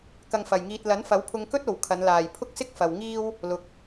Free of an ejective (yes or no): yes